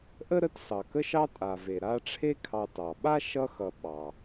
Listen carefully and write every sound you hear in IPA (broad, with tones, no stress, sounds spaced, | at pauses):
ʔ ə˥ ɾ ə˦ t s ɑ˩ k ə˦ ʃ ɑ˦ tʼ a˩ v e˩ ɾ a˦ ʈ͡ʂʰ e˦ kʰ ɑ˨ t ɑ˩ ɓ a˥ ʃ ʌ˦ x ʌ˨ ɓ ɑ˩